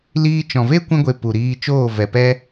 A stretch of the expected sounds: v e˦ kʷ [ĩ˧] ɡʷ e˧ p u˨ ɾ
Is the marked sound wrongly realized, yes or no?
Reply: yes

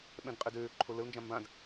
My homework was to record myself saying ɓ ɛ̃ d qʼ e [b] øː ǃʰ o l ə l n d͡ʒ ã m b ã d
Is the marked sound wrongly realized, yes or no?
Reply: yes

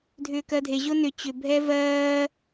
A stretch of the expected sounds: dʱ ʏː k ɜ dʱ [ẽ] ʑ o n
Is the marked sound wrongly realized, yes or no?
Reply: yes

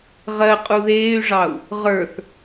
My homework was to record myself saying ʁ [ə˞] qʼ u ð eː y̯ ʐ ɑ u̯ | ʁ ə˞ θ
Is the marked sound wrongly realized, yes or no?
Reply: yes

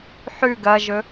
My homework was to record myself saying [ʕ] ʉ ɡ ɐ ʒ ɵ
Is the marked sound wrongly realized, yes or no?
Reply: yes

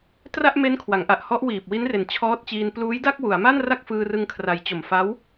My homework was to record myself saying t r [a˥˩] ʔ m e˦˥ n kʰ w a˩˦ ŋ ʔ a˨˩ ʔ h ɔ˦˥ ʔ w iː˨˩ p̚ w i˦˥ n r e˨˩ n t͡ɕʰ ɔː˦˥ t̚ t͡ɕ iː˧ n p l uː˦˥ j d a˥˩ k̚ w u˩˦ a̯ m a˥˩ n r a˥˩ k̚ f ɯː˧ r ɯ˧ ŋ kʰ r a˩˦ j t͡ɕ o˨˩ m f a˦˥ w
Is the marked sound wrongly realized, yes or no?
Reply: no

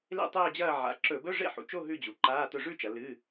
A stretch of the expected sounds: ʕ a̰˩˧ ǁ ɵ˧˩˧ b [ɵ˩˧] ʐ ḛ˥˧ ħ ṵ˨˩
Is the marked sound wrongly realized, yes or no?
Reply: yes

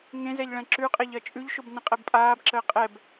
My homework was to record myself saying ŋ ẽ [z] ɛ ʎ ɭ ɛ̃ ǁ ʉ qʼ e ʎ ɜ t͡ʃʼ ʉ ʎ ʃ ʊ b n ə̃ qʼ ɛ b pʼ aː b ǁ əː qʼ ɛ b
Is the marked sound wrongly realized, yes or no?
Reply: no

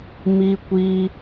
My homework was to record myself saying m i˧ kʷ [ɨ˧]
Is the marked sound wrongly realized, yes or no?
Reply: yes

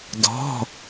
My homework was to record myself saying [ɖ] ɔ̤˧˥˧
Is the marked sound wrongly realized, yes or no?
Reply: yes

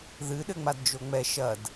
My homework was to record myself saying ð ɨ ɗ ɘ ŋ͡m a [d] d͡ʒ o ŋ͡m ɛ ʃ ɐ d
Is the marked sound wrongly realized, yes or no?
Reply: no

